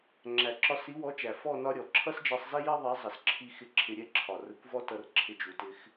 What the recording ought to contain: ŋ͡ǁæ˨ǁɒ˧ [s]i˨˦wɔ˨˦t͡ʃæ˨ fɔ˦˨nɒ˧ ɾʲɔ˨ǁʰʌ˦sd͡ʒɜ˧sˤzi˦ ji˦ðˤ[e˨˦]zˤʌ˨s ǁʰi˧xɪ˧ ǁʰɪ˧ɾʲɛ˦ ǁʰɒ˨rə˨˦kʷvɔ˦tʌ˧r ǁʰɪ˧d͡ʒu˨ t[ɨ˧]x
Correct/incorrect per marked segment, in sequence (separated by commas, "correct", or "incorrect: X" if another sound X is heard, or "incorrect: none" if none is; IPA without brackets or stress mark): correct, incorrect: ɛ˨˦, incorrect: ɪ˧